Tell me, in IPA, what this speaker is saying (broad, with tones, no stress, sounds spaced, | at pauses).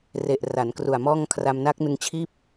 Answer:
r e˨˩ ʔ r a˩˦ n k r u˨˩ a̯ m ɔː˥˩ ŋ kʰ r a˧ m n a˦˥ k̚ n ɯ˧ ŋ t͡ɕʰ iː˥˩ p̚